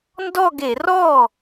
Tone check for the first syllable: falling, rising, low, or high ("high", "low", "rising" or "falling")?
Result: falling